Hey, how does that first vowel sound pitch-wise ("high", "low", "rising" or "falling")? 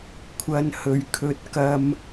low